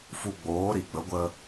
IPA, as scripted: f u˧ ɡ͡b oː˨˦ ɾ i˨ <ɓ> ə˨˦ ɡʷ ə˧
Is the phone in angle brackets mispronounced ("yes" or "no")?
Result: yes